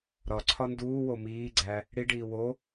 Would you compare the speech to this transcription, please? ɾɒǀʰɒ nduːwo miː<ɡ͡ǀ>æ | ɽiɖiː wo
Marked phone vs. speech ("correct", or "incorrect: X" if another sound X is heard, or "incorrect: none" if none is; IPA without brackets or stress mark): correct